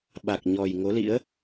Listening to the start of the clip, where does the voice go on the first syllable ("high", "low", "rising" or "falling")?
low